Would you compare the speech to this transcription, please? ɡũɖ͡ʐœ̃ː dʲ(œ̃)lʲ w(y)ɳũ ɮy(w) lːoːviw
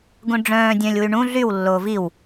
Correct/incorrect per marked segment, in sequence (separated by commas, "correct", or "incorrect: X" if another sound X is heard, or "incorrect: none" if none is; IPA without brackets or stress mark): correct, correct, correct